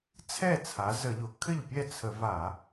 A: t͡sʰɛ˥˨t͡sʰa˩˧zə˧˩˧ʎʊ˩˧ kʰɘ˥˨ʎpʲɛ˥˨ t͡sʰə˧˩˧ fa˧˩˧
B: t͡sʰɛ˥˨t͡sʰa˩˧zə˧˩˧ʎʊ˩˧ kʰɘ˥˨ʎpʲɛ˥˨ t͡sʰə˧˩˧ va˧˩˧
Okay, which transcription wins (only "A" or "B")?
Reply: B